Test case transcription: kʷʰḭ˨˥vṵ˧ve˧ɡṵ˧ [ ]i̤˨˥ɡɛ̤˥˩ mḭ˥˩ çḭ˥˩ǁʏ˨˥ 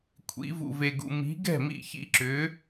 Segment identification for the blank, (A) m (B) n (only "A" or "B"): A